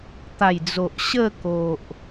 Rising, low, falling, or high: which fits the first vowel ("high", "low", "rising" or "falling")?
low